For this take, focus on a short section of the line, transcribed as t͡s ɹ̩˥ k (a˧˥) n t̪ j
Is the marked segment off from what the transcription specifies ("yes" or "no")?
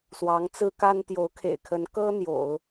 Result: yes